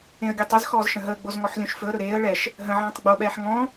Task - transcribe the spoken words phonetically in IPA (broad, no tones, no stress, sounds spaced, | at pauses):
ẽ ə̯ ɡʲ ɤ tˤ ə z x ɔː z ʃ ə̃ ɦ əː ɡ͡b o z ŋ ɔ ħ lʲ õ ʃ f ɵ ə̯ ɾ ɵ ɾ eː ə̯ ɭ ɛ ʃ | ɦ ə̃ ʕ ɔ̃ː tˤ ɡ͡b o ɓ ɛː ħ ŋ ɔ̃